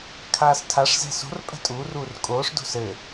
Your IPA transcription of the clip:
kʰ aː s tʰ a ʂ z ɛ̤ s o̤ r pʼ ɛ̤ tʼ uː r uː r kʼ oː ʂ d o̤ s ɘ

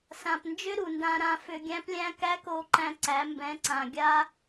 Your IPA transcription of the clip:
s ã˧ p n d͡ʒ ʏ˦ ɾ u˨ n d ã˧ ɾ ã˧ f ʏ˧ ɡʲ æ̃˦ p lʲ æ̃˦ k æ˦ k o˧ ǃ æ̃˧ ǀ æ˨˦ m b ɛ̃˨˦ ǀ ã˨ ɡʲ a˦

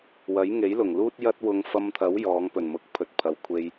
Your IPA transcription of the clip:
w ɐ˨˥ j ŋ e˨˥ j l ʊ˨˩ ŋ l uː˥ t̚ j ɐ˥ t̚ w ʊ˧ ŋ f ɐ˧ m t̪ʰ ɐ˨˥ w j ɔː˨˧ ŋ p ɵ˨˩ n m ʊ˨˥ k̚ pʰ ɵ˨ t̚ pʰ ɐ˨ w kʷʰ e˧ j

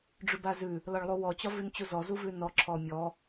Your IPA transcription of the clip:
ɖ͡ʐ ʉ b a z ʉ | l ɒ ɭ lˠ u w ɔ t͡ɕ ɒ v ʉ n t͡ɕ u z ɔ z u v ʉ n ɔ ǁʰ ɔ mʲ ɔ

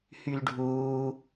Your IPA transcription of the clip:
h y l ɖʱ uː

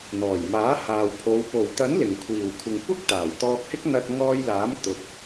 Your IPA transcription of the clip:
n̪ ɔː˨˩ j m aː˨˥ h aː˨ w pʰ o˨˧ w p o˨˩ w t̪ ɐ˨˥ n l ɪ˨˩ ŋ kʷʰ iː˨˩ w kʷʰ ɪ˨ ŋ kʷ ɐ˥ k̚ t̪ aː˨˩ w t̪ ɔː˧ k̚ h ɪ˥ k̚ n̪ ɐ˧ t̚ ŋ ɔː˧ j l aː˨˥ m t̪ ʊ˨ k̚

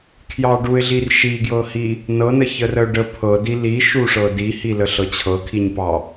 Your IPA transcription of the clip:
kʰ j ɑ ɖ u ɪ̯ ɮ i r ʃ i ɡ j ɤ h i | n ɤ n ə ç ə r ə ʊ̯ ɖ ə pʰ ɤ d i l i ʃ u ʂ ɤ d i h i l ə ɬ ɤ t͡ɕʰ ɤ kʰ i ɲ p ɑ

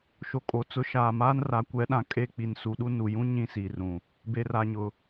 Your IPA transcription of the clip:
ʃ o˨ kʼ o˨˦ t͡s ʊ˨˦ ʃ aː˨ m aː˦ n r a˨˦ kʷ ɛ˨˦ ɗ ã˨ kʼ e˦˨ k͡p i˨ n s u˨ ɗ u˦ n u˨ j ũ˦ ɲ ĩ˦˨ s iː˨ r ũ˨ | b e˨ r a˨ ɲ ʊ˨

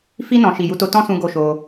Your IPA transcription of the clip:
f i˧ n ɔ̃˨ ʃ i˨ j u˧ t o˧ t ɔ̃˦ s ũ˧ ɡ o˦ ʃ o˧

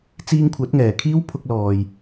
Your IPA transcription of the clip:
t͡s iː˧ ŋ kʷʰ ɐ˨˥ t̚ ŋ ɛː˨˩ kʰ iː˥ w pʰ ʊ˧ k̚ l ɔː˨ j

